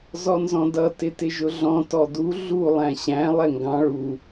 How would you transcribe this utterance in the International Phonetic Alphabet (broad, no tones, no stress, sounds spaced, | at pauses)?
z ɔ n z ɔ̃ d ʌ t ɪ t ɪ ʒ ʊ ɮ ɔ̃ t ɔ d u ɮ u lˠ æ̃ ɕ æ̃ lˠ ɛ ŋ ɡ ɑ̃ ɭ u